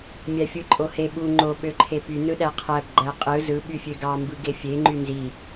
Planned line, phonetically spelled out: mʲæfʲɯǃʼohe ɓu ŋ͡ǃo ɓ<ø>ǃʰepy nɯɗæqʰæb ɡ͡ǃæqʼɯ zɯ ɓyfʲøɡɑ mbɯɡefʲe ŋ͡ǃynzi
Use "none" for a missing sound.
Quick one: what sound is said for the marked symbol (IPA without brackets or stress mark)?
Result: ø